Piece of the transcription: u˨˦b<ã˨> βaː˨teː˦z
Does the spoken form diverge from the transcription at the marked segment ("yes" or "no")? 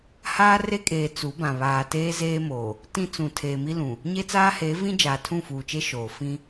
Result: no